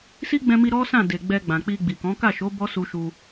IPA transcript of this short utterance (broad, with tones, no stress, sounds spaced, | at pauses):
s i˦ ɡ͡b ɛ̃˧ m i˧ ɾ ɔ˦ s ã˦˨ d e˨ ɡ͡b ɛ˧ ɡ͡b ã˨ k͡p i˧ ɡ͡b i˨ k ɔ̃˨˦ k a˦˨ ʃ o˨˦ b ɔ˦ s u˧ ʃ u˧